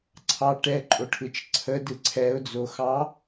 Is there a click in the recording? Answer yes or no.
yes